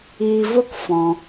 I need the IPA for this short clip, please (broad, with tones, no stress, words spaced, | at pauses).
iː˧vo˦k fɔ̃˧